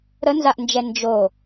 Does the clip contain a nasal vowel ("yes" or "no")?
no